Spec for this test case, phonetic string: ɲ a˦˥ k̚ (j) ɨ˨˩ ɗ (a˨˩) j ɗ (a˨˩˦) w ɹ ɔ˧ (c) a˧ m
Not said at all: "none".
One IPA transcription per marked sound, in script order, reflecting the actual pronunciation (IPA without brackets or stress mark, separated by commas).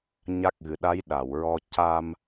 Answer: ɣ, a˧˥, a˨˩˨, c